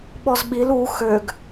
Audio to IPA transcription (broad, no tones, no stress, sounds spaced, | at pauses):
ɓ ɔ z ɓ i l u x ø ɡ